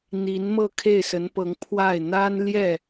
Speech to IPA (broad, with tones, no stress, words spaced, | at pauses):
n̪i˧˥nmɤ˥˧ kʰe˥˩ɪ̯sə˧˥npɤ˧˥ŋ pʰwa˥˩ɪ̯ n̪a˥nljɛ˥˩